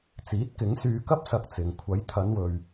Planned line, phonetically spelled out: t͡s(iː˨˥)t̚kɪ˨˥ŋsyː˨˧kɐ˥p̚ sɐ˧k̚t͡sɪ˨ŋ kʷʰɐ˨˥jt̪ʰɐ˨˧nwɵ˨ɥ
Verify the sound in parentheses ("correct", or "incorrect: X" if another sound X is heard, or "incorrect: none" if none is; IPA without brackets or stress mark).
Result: correct